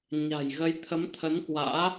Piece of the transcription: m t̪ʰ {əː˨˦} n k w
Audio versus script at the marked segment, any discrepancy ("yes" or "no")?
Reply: yes